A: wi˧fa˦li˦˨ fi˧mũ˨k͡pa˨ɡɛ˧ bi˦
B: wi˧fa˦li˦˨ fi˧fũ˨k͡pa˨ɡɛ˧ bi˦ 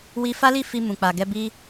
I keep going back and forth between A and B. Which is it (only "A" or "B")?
A